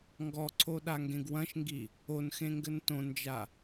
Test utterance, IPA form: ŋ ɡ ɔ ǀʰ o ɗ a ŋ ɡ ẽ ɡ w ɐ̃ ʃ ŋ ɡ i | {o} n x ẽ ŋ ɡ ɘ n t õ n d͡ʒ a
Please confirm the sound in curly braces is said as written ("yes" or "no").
yes